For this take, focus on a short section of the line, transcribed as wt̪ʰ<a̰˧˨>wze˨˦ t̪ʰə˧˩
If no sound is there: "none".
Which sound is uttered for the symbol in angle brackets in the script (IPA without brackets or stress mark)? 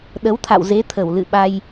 a̰˧˨